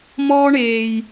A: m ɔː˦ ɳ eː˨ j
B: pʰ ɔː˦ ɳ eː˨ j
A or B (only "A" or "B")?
A